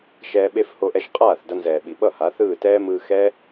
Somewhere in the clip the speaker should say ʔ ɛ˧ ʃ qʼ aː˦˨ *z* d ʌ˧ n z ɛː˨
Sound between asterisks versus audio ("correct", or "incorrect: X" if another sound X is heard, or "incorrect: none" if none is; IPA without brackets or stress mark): incorrect: θ